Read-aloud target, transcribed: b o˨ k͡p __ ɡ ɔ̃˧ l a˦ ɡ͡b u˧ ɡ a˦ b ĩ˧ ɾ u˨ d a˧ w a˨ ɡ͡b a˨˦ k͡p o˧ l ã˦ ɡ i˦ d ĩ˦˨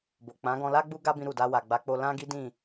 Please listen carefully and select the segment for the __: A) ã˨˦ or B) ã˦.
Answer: A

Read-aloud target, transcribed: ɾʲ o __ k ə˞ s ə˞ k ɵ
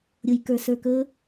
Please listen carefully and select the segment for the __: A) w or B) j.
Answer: B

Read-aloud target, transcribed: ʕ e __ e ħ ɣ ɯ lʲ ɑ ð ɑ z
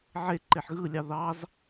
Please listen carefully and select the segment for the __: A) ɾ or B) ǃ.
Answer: B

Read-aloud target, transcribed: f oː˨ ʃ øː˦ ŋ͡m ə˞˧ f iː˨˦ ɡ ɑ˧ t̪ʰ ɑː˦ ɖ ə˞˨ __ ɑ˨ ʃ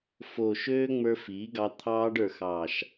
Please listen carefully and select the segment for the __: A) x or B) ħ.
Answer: A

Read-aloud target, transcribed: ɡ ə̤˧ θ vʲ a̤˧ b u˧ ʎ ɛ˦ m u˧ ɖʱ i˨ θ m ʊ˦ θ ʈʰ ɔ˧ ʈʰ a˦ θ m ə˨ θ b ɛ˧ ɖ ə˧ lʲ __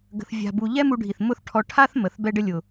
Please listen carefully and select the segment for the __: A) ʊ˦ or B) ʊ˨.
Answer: B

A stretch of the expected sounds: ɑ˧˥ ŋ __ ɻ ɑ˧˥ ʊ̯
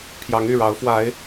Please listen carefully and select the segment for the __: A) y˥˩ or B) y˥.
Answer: A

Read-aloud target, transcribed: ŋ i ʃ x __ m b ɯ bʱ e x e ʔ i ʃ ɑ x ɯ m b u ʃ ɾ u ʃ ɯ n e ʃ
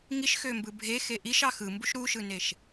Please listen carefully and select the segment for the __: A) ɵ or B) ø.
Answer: B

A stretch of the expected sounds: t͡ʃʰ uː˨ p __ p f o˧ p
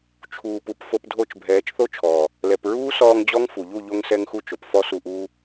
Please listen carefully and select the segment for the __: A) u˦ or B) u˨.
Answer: B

